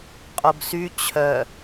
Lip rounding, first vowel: rounded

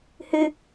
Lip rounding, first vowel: unrounded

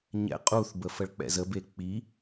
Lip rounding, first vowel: unrounded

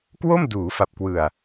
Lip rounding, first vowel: rounded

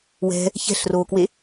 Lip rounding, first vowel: unrounded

